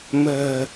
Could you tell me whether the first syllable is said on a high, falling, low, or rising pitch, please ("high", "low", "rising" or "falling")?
low